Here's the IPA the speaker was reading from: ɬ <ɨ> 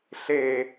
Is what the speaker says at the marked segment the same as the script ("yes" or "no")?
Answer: no